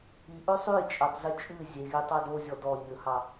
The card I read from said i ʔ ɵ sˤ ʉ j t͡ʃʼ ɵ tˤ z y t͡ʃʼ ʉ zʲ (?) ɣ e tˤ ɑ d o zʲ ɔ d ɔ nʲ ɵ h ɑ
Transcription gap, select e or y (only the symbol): e